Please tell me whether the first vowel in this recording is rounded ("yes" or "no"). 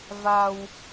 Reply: no